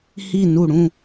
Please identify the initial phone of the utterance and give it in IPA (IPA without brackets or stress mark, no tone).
h